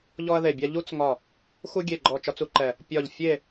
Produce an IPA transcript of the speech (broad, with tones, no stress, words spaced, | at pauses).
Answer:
ʎɔ˥ɐ̯ðe˦˨bʲa˥ ʎu˥t͡sŋɒ˦˨ | xu˥ɡʲe˦˨ɡ͡ǃɔ˦˨ t͡ʃɒ˥t͡su˥ǃɛ˦˨ | pʲɒ˦˨ʎ fʲe˦˨